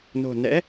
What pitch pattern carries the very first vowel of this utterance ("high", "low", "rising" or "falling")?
low